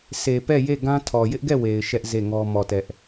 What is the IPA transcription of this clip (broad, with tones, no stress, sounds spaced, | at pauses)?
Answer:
sʰ e˨ p ɛ˦˨ j e˦˨ ɡ ã˦ tʰ ɔ˨ j ɪ˦ ʔ ɡ ɛ˦˨ w e˨ ɪ̯ ʃ ɛ˦ ʔ z e˦˨ ŋ ɔ˦ m ɔ˦˨ t ɛ˦ ʔ